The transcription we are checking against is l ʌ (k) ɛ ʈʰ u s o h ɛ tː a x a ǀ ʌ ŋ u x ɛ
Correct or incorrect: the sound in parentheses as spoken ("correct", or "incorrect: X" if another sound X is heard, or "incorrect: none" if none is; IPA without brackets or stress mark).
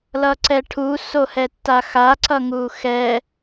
incorrect: ǀ